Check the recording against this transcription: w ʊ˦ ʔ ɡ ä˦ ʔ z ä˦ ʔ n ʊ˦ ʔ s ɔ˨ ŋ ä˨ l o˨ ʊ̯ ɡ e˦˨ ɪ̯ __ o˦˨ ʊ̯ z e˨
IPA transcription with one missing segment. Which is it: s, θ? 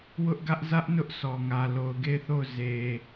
θ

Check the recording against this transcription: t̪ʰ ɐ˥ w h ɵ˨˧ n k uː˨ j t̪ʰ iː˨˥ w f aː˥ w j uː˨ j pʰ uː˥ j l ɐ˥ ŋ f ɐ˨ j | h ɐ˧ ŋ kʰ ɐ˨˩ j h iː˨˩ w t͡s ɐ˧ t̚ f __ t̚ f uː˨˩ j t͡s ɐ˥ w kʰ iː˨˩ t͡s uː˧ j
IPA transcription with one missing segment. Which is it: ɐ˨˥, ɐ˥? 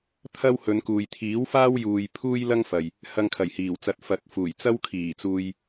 ɐ˨˥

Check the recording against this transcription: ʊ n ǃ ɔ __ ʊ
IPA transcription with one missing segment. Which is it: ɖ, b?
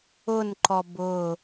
b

